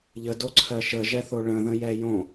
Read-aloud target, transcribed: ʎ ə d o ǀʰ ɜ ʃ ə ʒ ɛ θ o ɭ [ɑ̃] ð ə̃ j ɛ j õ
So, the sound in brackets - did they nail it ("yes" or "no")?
no